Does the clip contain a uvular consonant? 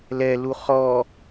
yes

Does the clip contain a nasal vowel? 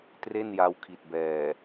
no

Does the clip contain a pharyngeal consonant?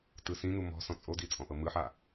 yes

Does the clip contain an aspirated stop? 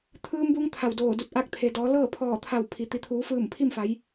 yes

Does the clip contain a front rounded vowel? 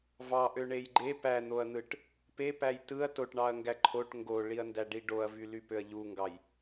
yes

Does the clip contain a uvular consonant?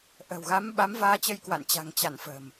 no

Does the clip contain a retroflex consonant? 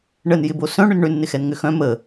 yes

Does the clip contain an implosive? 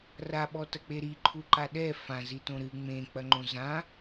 yes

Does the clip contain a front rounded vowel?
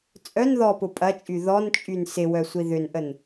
yes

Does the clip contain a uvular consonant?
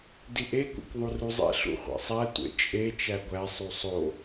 yes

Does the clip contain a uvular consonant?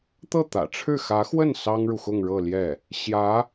no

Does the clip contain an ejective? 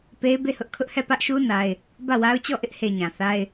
no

